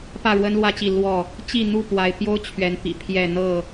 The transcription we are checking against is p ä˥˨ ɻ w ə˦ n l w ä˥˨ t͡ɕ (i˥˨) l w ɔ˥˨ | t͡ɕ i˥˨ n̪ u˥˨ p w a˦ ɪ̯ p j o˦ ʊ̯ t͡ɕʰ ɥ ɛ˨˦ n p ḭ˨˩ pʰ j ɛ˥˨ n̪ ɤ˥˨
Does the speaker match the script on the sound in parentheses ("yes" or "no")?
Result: yes